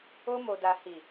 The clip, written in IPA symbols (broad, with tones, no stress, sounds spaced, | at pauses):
o˧ m o˨ d a˨ h i˨